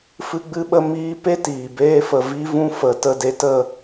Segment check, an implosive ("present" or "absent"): present